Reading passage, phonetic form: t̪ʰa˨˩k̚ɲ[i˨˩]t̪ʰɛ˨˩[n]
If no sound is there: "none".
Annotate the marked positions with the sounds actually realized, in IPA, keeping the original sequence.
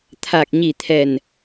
i˨˩, n

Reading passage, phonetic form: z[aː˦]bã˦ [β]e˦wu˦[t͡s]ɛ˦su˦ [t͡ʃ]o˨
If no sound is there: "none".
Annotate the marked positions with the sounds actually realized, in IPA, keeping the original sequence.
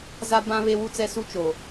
a˦, β, t͡s, t͡ʃ

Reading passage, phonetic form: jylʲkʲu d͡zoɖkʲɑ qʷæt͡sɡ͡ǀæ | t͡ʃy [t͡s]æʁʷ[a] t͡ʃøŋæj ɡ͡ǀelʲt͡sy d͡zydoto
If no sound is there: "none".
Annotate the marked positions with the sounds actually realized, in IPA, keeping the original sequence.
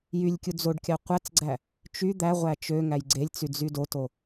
d̪, æ

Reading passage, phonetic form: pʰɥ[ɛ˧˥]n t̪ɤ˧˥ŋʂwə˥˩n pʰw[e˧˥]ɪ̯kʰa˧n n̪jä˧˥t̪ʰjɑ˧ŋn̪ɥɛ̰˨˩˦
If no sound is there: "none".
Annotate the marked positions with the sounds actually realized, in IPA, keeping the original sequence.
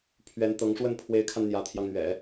ɛ˧˥, e˧˥

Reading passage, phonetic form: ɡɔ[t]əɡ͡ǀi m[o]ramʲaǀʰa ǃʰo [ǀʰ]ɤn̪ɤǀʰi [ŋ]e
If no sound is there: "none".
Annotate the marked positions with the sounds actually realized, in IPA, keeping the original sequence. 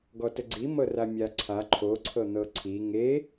t, ɤ, ǀʰ, ŋ

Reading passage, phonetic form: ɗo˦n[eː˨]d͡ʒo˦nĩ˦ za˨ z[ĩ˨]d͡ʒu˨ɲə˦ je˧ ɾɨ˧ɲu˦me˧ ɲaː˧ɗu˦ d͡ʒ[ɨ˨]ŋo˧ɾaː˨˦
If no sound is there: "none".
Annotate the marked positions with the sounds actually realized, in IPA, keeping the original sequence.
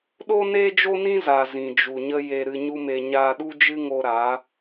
eː˦, ĩ˨, ɨ˦

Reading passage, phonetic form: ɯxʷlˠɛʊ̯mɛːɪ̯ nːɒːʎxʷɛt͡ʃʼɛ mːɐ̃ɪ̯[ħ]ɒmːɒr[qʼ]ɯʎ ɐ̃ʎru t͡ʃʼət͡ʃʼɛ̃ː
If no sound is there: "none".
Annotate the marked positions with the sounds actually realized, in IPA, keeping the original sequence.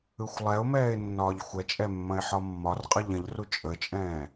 ħ, qʼ

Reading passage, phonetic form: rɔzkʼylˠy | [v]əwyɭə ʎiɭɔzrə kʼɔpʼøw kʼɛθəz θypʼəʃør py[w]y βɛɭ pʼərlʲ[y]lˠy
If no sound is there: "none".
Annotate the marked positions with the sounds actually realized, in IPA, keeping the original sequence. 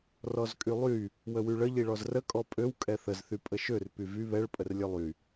w, v, ø

